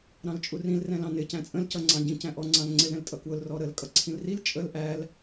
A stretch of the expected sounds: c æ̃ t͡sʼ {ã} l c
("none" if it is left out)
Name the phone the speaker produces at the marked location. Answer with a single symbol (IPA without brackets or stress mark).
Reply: ə̃